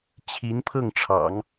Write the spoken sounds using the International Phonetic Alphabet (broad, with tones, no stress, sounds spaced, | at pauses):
t͡ɕʰ i˧˥ n pʰ ɤ˥˩ ŋ ʈ͡ʂʰ ɑ̰˨˩˦ ŋ